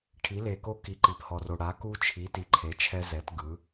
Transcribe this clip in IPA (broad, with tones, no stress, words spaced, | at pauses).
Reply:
ʈʰi˩˥le˨ko˦ ki˨ǃi˨phɔ˨ro˨ ɽa˩˥ku˦t͡ʃʰi˩˥ ti˨ǃʰe˩˥t͡ʃʰɛ˦ zɛ˩˥t ɡɯ˩˥